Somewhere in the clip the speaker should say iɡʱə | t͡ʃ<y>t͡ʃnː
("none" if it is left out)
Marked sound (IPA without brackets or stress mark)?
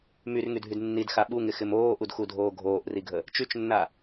y